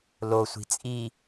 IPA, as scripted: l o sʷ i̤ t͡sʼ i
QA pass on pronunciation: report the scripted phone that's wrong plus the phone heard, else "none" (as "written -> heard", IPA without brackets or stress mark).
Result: none